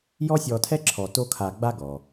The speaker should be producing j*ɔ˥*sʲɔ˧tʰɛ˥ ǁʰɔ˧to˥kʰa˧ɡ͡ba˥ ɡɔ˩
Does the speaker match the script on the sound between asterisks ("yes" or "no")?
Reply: yes